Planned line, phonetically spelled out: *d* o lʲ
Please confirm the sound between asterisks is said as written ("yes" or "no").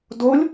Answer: yes